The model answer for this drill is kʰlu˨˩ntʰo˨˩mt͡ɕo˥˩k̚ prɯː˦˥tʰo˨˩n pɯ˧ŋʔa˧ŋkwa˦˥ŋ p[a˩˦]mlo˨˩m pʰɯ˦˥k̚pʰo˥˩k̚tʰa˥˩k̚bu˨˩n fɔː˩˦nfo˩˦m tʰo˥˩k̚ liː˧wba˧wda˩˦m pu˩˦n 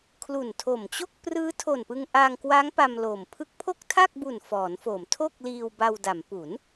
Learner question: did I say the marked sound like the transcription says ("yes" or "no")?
no